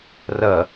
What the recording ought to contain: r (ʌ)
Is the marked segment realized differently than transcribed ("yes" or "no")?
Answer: no